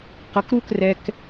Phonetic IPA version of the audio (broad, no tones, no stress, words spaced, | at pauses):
qʌkɾukrɛk